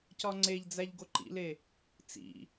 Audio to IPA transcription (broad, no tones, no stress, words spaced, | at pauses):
cɒŋ͡ǀeʎd͡zæʎ ɡoǃḭle | t͡sḭ